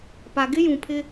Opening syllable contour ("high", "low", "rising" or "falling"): low